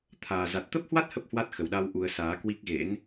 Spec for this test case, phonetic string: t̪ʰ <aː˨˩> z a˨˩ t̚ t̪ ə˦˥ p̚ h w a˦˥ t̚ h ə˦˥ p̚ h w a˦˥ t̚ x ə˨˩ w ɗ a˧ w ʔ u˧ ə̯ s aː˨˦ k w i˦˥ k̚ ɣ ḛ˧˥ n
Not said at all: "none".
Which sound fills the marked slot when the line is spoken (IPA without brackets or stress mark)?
aː˨˩